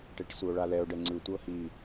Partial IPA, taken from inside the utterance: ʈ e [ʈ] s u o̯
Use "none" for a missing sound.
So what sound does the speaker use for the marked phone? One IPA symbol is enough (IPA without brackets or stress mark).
ʈ